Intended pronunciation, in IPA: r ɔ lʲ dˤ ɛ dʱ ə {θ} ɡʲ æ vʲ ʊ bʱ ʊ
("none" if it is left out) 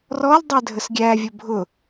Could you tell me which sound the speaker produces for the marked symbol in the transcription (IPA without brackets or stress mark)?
s